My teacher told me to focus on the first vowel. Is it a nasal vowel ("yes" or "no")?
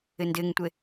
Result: no